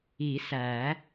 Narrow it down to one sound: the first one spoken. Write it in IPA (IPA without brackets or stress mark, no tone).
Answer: i